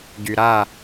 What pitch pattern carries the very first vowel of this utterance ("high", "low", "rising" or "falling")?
low